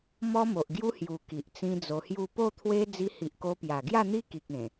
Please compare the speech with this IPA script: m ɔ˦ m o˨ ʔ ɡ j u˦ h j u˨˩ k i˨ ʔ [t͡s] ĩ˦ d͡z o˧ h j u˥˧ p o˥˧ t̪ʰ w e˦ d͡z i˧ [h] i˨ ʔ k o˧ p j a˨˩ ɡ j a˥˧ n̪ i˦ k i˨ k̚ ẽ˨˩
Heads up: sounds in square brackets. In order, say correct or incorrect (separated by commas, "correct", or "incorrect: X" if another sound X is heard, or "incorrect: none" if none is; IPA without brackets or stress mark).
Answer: correct, correct